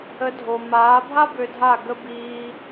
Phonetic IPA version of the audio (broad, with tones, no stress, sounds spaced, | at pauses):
ə˨˦ dʱ o˨ m aː˨˦ bʱ a˦ b ø˧ dʱ a˦˨ ɡ ə˧ b iː˧